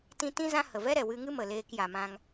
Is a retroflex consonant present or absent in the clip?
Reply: absent